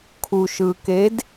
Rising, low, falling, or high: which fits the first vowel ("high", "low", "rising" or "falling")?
low